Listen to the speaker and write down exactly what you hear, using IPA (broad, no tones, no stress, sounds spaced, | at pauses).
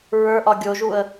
ɹ ə˞ ʔ ɒ ɡʲ o ʒ u ə̯